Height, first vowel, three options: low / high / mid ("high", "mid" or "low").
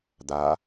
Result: low